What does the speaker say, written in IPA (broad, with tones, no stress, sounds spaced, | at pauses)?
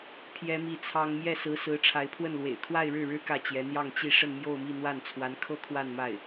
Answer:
pʰ j ɛ˥ m i˥˩ t͡sʰ ɑ˥ ŋ m j ɛ˥˩ s ɹ̩˧˥ s ɹ̩˧˥ ʈ͡ʂʰ a˧˥ ɪ̯ pʰ w ə˥˩ n l w ḛ˨˩ ɪ̯ kʰ w a˥˧ ɪ̯ ɻ ɻ̩˥˩ ɻ ɻ̩˥ k ä˥˩ t͡ɕ j ɛ˧˥ n̪ j ɑ˥˧ ŋ t͡ɕ i˥˧ ʂ ə˥˧ n m j o˥˧ ʊ̯ m i˥˧ n̪ w a˥˩ n t͡sʰ w a˧˥ n kʰ ɤ˥ kʰ w a˥˧ n m a˥˩ ɪ̯